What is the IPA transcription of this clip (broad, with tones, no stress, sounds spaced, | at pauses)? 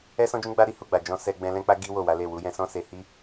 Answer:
ɛ˦ s ɔ̃˦ d͡ʒ ũ˦ ɡ͡b a˦ ɾ i˦ h u˦˨ ɡ͡b a˨ d͡ʒ ɔ̃˧ s ɛ˧ ɡ͡b ɛ̃˧ l ɛ̃˦ k͡p a˦ ɡ i˦ w o˦˨ w a˨˦ l e˦˨ w u˨˦ j ɛ̃˧ s ɔ̃˦ s e˧ h i˦